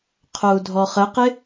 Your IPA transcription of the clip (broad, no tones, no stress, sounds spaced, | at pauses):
qʰ o u̯ dʱ ɔ χ ə q ɪ